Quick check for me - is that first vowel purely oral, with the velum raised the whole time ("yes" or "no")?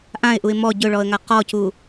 no